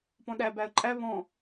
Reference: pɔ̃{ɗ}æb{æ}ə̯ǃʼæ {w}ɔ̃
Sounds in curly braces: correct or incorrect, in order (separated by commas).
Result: correct, correct, incorrect